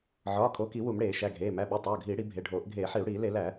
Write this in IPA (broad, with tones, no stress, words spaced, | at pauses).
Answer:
ʕɒː˩˧˩kʰo˩˧˩ki˧˩˧ wu˧˩˧mɽeː˧˩˧ʃæ˩˧˩ɡʱeː˩˧˩ mæ˩˧˩ɓo˩˧˩ tˤoː˩˧˩ɡʱiː˧˩˧ɽi˧˩˧ bʱe˩˧˩ɖʱoː˧˩˧ʔ ɡʱeː˧˩˧ħi˧˩˧u̯ɽiː˧˩˧ le˧˩˧læ˧˩˧